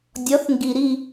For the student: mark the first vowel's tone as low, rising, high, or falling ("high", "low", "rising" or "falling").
rising